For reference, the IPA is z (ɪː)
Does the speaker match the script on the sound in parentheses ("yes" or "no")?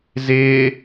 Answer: yes